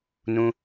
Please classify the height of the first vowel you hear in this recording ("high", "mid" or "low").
high